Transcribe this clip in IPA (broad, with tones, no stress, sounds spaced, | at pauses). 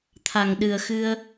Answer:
t̪ʰ a˨˩ ŋ ɗ ɨ˨˩ ə̯ x ɨ˧ ə̯